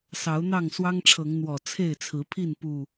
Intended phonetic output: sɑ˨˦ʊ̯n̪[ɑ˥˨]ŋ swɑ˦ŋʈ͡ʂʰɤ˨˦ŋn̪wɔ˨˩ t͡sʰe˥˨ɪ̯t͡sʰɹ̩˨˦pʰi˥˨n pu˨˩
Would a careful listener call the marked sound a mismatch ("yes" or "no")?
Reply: no